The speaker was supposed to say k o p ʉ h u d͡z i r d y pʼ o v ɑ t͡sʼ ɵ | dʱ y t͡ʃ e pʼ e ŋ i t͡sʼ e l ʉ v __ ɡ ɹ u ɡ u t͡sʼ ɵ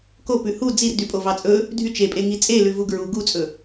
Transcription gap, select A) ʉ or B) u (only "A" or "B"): B